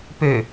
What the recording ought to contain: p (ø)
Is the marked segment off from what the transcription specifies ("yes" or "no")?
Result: no